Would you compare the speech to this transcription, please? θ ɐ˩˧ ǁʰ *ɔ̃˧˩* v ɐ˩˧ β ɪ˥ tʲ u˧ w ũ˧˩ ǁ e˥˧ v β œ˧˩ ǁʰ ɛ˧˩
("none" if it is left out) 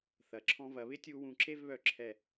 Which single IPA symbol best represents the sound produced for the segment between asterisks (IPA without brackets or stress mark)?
ɔ̃˧